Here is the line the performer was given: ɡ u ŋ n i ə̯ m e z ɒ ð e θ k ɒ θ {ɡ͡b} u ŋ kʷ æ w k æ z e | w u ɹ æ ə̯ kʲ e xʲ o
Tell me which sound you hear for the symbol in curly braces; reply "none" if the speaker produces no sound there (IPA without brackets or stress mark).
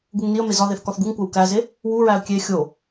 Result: ɡ